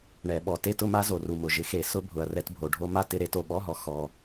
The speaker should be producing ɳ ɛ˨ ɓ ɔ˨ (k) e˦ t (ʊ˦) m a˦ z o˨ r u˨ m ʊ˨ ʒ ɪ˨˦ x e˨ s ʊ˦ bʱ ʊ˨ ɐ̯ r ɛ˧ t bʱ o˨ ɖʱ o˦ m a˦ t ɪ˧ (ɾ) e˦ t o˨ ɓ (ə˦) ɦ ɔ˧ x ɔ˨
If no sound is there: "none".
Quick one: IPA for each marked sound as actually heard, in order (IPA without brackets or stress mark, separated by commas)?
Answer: t, ʊ˦, ɾ, ɔ˦